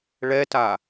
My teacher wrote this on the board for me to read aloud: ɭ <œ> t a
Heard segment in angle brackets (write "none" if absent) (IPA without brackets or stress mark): ɛ